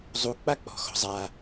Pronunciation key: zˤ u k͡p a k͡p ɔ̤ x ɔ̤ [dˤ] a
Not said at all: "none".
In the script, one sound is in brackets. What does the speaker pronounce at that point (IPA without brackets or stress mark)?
zˤ